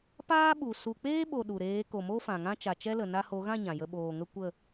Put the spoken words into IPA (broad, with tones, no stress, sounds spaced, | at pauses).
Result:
p aː˦ ɓ u˨ s u˨ k͡p eː˦ ɓ o˨ ɗ u˨ ɾ eː˨˦ k o˨ m o˦ f ã˨ ŋ ã˦ t͡ʃ a˨ t͡ʃ ɛ˦ l ə˨ n a˧ h o˨˦ ɣ ã˦˨ ɲ ã˨ j ə˧ ɓ oː˨ ŋ ə˦ kʷ ə˦˨